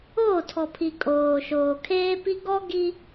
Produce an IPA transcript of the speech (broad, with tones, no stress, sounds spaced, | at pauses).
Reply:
oː˦˨ tʰ ɔ˨ pʰ i˨ kʼ oː˨ ʃ oː˨ kʰ eː˦ p i˦ ɡ ɔ˦ ɡ i˦